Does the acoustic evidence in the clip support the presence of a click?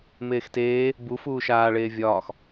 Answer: no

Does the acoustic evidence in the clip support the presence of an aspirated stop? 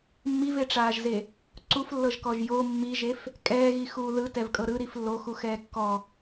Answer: no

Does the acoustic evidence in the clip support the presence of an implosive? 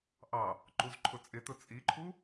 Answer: no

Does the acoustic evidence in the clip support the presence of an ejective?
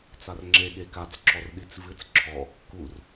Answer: no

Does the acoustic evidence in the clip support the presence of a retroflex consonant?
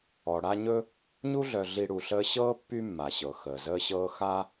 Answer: yes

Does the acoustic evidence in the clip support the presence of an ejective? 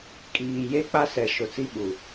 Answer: yes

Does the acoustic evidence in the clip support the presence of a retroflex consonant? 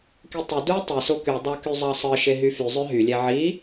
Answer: no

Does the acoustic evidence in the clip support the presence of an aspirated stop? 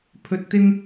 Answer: yes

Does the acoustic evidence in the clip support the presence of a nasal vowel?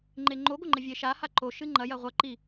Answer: no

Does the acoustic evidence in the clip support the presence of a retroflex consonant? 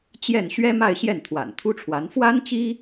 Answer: yes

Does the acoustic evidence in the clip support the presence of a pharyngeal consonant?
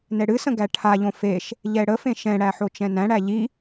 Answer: yes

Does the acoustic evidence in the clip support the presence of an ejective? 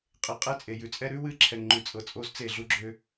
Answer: yes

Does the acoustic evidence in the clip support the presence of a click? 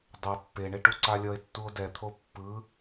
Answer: yes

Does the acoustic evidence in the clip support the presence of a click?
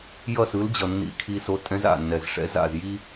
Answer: no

